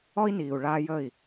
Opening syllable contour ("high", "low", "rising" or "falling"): high